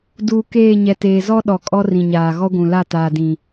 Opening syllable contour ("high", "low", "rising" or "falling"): low